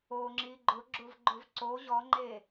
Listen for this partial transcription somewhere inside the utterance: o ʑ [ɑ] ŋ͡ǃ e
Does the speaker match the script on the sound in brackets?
no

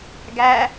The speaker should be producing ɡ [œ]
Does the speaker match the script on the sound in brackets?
no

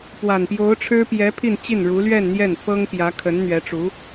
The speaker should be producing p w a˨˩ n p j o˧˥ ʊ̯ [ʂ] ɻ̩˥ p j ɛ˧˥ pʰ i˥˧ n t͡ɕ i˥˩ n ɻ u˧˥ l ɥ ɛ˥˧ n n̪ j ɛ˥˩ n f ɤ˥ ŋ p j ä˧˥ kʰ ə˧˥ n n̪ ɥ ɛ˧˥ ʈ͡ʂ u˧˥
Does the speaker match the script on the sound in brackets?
no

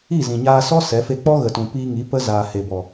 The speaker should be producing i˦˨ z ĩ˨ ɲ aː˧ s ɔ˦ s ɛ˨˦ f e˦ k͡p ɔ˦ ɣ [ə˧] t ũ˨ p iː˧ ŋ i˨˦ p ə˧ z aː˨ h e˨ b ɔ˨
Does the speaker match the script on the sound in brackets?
no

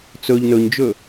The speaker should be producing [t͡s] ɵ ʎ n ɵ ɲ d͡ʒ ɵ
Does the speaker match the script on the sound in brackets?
yes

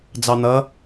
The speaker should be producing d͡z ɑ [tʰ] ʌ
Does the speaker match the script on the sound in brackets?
no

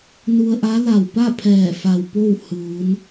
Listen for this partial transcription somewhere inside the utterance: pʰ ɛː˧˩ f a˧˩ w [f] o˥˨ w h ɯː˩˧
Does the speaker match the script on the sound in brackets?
no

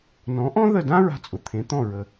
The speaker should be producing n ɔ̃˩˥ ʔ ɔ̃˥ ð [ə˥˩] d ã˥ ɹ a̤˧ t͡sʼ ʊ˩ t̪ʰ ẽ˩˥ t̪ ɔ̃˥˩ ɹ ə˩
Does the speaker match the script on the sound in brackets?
yes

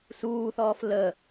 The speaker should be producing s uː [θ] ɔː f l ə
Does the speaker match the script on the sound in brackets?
yes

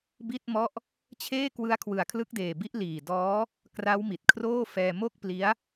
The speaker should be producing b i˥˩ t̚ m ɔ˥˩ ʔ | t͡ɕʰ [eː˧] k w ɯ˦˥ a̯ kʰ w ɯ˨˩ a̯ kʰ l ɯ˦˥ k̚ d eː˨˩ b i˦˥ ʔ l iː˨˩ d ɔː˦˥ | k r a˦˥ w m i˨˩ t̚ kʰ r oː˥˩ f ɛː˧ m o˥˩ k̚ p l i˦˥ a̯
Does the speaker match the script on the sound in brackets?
no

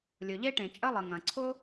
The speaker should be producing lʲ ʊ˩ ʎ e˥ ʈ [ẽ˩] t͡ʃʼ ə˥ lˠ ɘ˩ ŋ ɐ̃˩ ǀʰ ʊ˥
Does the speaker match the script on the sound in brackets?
yes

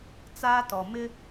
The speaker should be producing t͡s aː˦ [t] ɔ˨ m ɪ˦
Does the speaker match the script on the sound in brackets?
yes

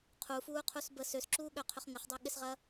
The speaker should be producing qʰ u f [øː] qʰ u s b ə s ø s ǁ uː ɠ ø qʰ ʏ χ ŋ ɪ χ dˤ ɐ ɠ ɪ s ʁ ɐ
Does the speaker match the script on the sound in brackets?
no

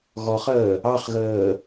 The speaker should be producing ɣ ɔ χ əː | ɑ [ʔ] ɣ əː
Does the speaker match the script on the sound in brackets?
no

